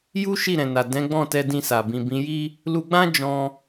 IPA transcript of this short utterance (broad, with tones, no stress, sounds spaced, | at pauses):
j u˦ ʃ i˦˨ ɾ ɛ̃˨ n a˨ d ɛ̃˨˦ ɡ͡b ɔ̃˦˨ t ɛ˧ d ĩ˧ s a˨ b ĩ˨ b ĩ˨˦ j i˦ | l u˧ ɡ͡b ã˦ d͡ʒ ɔ̃˧